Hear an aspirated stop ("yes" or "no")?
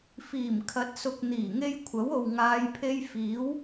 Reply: yes